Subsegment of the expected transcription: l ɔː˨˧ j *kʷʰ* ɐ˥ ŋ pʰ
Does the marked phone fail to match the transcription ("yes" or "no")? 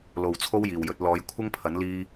no